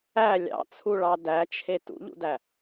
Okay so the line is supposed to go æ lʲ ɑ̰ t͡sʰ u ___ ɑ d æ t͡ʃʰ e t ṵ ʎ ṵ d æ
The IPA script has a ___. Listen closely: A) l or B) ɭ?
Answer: B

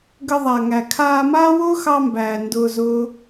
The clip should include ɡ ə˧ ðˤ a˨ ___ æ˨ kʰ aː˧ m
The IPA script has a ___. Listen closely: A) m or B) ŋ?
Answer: B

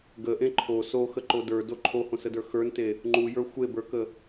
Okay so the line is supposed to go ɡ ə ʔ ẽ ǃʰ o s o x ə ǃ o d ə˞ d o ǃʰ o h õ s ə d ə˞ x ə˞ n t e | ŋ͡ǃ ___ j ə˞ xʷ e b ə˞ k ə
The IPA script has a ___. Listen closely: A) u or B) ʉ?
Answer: A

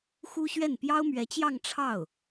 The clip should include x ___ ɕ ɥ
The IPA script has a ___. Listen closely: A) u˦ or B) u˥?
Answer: B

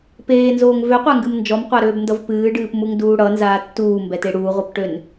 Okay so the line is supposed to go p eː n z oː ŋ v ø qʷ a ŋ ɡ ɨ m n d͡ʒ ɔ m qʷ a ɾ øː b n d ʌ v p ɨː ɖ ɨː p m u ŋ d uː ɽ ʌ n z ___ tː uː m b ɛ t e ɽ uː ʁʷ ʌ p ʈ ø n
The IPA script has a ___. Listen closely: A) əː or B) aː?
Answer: B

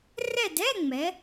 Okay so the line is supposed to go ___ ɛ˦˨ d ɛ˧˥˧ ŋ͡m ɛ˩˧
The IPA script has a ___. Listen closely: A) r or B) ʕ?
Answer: A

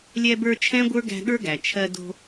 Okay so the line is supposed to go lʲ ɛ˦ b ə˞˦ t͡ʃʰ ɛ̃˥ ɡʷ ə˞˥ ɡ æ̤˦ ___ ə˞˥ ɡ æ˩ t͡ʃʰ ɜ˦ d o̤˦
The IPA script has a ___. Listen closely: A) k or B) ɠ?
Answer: B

